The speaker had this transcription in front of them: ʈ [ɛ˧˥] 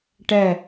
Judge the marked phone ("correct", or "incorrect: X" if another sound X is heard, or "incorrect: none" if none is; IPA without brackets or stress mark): incorrect: ɛ˨˩